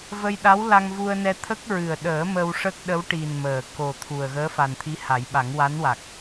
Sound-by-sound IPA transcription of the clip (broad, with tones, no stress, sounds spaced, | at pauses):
v ə˧ j ɗ a˧˥ w l a˧ ŋ v u˧ ə̯ n ɛ˧ t̪ʰ ə˦˥ k̚ ɹ ɨ˨˩ ə̯ ɗ əː˨˩˦ m ə˧ w ʂ ə˦˥ k̚ ɗ ə˧˥ w ʈ i˨˩ n m əː˨˩ k o˨˩ t̪ʰ u˨˩ ə̯ ɣ əː˧˥ f a˨˩ n t̪ʰ i˧˥ h a˨˩˦ j ɓ a˨˩˦ ŋ w a˧˥ n w a˨˩ k̚